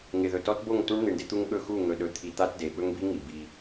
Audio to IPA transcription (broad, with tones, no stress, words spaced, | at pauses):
ŋɪ˨ðɵ˨tɔ˦tbo˦˨ŋ tu˦ɳn̪i˨ɳdɪ˦t̪u˦ŋ ɠɵ˦˨xu˦˨ ŋɵ˨ɗɵ˨t̪ʰi˨t̪a˦t de˨ ɓɵ˦ŋbi˦ŋi˨ bi˦